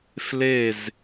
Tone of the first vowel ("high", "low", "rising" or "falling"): falling